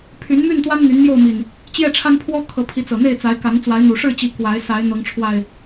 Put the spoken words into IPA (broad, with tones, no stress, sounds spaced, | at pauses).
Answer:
pʰ y˨˦ n m y˥˨ n t̪ w a˦ n n̪ y˨˦ n m j o˥˨ ʊ̯ m i˨˩ n | t͡ɕ j ɛ˥˨ ʈ͡ʂʰ a˦ n pʰ w ɔ˦ kʰ ɤ˨˦ pʰ i˨˦ t͡s ɤ˨˩ n̪ e˥˨ ɪ̯ t͡s a˨˦ ɪ̯ k a˨˦ n t͡s w a˨˦ ɪ̯ n̪ u˨˩ ʂ ɻ̩˥˨ t͡ɕ i˨˦ k w a˨˦ ɪ̯ s a˨˦ ɪ̯ n̪ ɤ˨˦ ŋ ʈ͡ʂʰ w a˨˩ ɪ̯